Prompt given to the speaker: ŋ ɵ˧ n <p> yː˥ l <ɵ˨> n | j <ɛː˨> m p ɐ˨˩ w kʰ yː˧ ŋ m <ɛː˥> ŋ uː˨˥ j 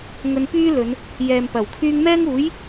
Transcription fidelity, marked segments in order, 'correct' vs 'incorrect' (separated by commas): correct, incorrect, correct, correct